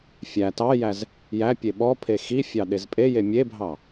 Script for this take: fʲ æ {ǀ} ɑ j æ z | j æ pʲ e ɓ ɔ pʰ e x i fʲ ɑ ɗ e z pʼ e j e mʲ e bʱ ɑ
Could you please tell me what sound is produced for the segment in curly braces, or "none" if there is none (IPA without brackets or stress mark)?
t